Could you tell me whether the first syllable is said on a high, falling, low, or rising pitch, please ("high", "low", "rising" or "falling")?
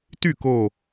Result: falling